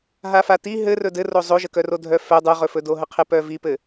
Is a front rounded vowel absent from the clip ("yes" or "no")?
no